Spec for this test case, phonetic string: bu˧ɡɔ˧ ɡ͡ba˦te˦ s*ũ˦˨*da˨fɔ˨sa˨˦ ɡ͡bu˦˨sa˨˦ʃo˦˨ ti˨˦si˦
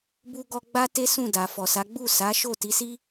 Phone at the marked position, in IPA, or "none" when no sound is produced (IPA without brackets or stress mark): ũ˦˨